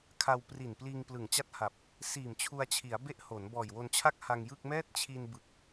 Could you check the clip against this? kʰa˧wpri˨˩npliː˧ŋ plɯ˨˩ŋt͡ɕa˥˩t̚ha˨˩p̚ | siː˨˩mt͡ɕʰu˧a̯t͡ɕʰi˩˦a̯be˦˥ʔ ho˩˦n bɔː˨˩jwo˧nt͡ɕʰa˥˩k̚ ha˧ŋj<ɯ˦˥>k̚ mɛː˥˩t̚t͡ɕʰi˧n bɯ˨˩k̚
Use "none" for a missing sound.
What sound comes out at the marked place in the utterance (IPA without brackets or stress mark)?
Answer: ɯ˥˩